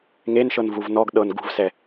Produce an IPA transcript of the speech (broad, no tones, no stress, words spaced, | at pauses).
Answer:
ŋenʃɤn vuvnɔɡ ɗɤn ɡṳvsɛ